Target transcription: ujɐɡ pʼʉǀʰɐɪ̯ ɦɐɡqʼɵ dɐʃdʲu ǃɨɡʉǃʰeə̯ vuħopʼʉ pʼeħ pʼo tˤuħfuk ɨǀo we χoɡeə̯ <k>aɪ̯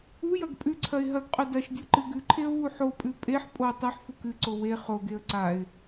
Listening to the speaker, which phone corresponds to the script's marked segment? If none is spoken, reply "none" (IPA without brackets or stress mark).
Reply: ǀ